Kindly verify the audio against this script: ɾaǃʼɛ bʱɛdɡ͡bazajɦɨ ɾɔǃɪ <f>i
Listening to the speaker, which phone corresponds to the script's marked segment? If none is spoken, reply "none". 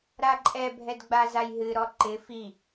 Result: f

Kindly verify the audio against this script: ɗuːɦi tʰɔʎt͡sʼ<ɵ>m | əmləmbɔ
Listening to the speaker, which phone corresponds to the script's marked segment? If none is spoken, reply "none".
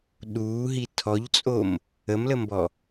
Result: o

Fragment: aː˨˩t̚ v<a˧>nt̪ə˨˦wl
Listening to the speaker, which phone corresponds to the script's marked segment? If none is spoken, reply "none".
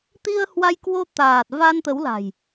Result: a˧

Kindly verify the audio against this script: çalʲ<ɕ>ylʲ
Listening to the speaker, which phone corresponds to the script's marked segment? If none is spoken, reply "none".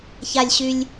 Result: ɕ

